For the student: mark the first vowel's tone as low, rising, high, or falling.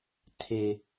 low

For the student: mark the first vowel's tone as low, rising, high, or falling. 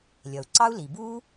low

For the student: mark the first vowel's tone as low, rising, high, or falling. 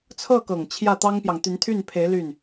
falling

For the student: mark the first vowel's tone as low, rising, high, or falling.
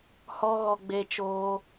high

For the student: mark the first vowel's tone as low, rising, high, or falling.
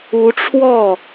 rising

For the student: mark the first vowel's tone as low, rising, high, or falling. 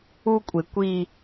high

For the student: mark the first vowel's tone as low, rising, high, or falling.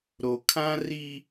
low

